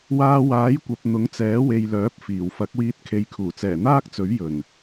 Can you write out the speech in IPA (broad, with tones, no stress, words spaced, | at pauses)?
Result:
waː˧waː˨˥jkʷɐ˨p̚ n̪ʊ˨˥ŋt͡sɛː˨˥we˨jlœː˨˥p̚ fiː˨˩wfɐ˨˥k̚wiː˧t̚ kʰe˨jkʰuː˨˩t͡sɛː˨˩n̪aː˥k̚ t͡sɵ˨˥ɥjɵ˨˩n